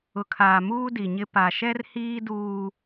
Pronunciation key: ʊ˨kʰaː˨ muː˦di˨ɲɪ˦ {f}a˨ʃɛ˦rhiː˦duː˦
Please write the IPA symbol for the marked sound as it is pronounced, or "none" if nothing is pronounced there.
p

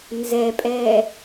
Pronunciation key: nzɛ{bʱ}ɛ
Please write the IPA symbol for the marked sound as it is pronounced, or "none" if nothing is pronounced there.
pʼ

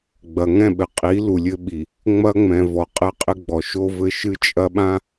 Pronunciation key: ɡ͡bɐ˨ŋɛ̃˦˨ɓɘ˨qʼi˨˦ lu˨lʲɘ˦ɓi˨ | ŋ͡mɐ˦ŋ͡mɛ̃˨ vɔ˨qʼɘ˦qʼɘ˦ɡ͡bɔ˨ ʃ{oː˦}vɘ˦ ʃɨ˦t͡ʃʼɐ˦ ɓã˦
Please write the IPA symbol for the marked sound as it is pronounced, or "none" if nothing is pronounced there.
o˦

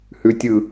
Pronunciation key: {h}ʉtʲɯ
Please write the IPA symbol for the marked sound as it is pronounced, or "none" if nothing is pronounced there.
h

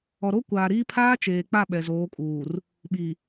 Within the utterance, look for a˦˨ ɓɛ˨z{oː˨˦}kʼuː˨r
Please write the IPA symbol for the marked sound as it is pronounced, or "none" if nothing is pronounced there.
oː˨˦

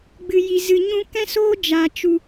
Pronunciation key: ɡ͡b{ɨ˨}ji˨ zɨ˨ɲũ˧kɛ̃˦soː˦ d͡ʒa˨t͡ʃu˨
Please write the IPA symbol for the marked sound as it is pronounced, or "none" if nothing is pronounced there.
ɨ˨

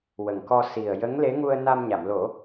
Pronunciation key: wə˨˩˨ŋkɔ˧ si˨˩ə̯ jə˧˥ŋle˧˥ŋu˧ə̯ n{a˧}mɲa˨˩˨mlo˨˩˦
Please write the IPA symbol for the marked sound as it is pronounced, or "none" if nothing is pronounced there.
a˧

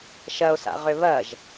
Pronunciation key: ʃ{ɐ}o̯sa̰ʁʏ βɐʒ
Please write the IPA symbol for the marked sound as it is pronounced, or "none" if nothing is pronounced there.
ɐ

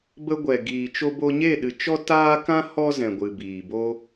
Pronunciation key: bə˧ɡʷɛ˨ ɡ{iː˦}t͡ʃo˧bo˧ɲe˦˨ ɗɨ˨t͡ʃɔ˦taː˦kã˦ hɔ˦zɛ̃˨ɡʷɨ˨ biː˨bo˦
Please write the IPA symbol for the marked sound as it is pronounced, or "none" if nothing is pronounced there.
iː˨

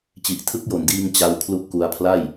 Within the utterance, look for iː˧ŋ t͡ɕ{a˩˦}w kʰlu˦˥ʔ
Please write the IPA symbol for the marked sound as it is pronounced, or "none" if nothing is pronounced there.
a˦˥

